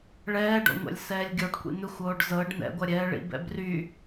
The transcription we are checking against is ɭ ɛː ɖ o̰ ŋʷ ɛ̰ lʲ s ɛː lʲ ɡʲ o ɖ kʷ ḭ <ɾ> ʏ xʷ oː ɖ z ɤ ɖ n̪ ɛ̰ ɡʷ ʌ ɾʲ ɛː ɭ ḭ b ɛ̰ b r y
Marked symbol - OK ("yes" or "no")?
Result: no